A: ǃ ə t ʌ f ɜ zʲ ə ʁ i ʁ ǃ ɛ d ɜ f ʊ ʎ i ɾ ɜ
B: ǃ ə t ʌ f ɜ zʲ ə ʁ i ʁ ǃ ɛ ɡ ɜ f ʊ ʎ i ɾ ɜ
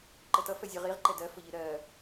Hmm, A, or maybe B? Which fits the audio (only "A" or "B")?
A